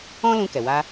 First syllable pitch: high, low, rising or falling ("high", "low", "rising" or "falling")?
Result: high